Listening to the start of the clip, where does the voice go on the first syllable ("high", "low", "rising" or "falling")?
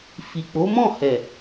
low